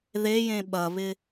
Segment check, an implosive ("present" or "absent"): present